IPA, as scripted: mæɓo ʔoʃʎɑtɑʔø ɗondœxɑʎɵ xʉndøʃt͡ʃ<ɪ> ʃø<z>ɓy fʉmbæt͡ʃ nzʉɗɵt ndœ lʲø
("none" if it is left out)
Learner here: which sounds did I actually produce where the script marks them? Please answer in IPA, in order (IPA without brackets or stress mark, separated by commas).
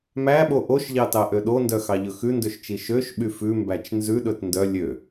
i, ʃ